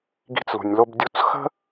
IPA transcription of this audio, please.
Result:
ɡ i̤˦ t͡s l ṳ˨ nʲ l o˦ b dʲ u˦ t͡s x ə̤˦

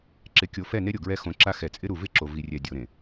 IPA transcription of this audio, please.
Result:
ǁ ɪ˨ kʲ o˨ f ɛ˦˨ n e˦ ɾʲ o˨ ɡ ɹ ɛ˦ x õ˨˦ ǁ a˦ x ɛ˨ t͡sʼ ɪ˦ ɾ u˨ v ɪ˦ ǁ o˨ v i˨ rʲ ɛ˨ dʲ o˨ ɾ ẽ˨

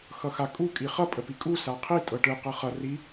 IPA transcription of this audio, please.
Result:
x ʌ x a kʼ u kʼ i χ ʌ pʼ ə p i kʼ u s a qʰ i tʼ ɤ ʈ ɯ q ɤ χ ʌ r i

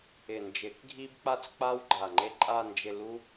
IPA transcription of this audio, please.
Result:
ɪ˨˩ n d͡ʒ ɪ˨˩˦ k ɡʱ i˦ b k͡p a˦ t͡s k͡p a˦ w ɡ͡ǃ a˨˩ ŋ͡ǃ e˦ ǃʼ a˦˨ n d͡ʒ ɪ˦˨ l u˦

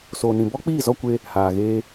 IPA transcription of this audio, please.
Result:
s oː˨ n ĩ˨ b ɔ˦ k͡p iː˦˨ z ɔ˦ kʷ e˧ | h aː˨ ɣ eː˧

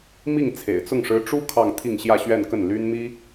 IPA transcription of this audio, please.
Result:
m i˥˩ ŋ t͡sʰ ḛ˨˩ ɪ̯ t͡s ʊ˥˩ ŋ ʂ ɻ̩˧˥ ʈ͡ʂ u˥ kʰ ɑ˥˧ ŋ t̪ʰ i˥˧ ŋ ɕ j ä˥˧ ɕ ɥ ɛ˥˧ n k ə˥˩ n l y˥ n m i˥

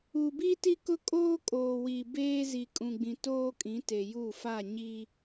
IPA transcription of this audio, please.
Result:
u˨ b i˦ t i˦ k ʊ˦ kʼ oː˦ kʼ oː˨ w i˨ b eː˦ z i˨ kʼ ũ˨ ɡ͡b ĩ˨ t oː˦ kʼ ĩ˨˦ t e˨ j u˦˨ f a˦˨ ɲ i˦

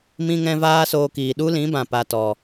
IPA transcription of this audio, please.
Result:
m ĩ˦ ŋ ɛ̃˦ v aː˦ s oː˧ k iː˨ ɗ u˦ l ĩ˨˦ b ã˨ p a˧ t ɔ˨

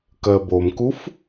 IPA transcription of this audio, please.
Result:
k ɜ b o m k u f

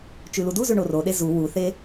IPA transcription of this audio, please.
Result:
t͡ʃ ʉ l u d u z ʉ ɳ o r o ɗ e z u w u θ e

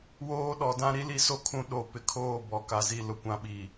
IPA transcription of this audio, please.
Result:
w oː˦ ɗ ɔ˨ d ã˦ ɾ i˦ l i˦ s o˦ kʰ ũ˨ ɗ o˨ p ɪ˨ kʰ oː˦˨ b ɔ˨ k a˨ z i˦˨ l ʊ˦ kʷ ã˦ ɓ i˨

